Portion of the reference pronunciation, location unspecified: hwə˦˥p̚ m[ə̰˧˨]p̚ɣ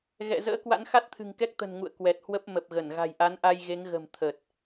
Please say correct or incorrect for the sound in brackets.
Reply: incorrect